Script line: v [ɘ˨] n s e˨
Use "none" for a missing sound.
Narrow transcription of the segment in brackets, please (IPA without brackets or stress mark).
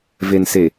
e˨